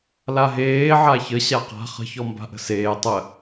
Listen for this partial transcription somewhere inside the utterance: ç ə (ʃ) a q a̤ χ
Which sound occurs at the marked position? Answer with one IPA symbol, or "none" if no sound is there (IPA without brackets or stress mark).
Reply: ɕ